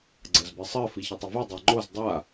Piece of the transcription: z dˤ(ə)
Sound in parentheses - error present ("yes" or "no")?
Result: yes